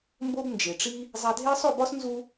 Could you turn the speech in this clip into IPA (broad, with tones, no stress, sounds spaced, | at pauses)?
m b o˧ b n d͡ʒ e˨ ʈ͡ʂ i˦ | zˤ æ˧ dʱ e˦ sˤ o˦˨ b ɒ˦ s n z u˧